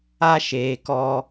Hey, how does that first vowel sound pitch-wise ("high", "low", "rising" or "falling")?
high